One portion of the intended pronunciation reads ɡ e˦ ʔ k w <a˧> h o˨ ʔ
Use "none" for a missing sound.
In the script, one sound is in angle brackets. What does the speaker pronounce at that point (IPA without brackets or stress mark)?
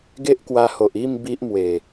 a˧